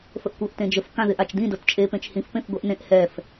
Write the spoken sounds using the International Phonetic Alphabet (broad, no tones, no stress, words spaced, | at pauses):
fəʔkʷɤʔtẽd͡ʒəf kãðɪʔat͡ʃdĩ dɤtt͡ʃʼe pẽt͡ʃhĩf pẽfɡʷɛʔnẽʔ hɛf